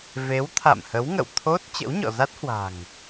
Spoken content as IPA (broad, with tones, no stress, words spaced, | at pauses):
ve˨˦wt̪ʰa̰˧˨mhə˨˦w ŋə̰˧˨wt̪ʰo˦˥t̚ t͡ɕə̰˧˥wɲɔ̰˧˨za˦˥t̚hwa̤˨˩ŋ